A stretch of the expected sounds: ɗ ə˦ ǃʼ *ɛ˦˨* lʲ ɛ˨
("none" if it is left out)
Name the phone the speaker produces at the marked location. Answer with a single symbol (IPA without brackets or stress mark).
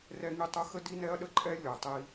ɛ˦